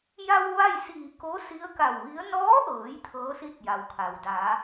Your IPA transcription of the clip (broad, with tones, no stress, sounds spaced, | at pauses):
j a˧ w ʋ a˥˨ j s iː˧˩ k o˧˥ s i˧˥ ə̯ k a˧˩ w ʋ i˧˥ ə̯ n ɔː˧˥ ʔ ɤː˩˧ j t̪ʰ ɤː˧˥ s i˥˨ t̚ j a˩ w kʰ a˩ w d a˩˧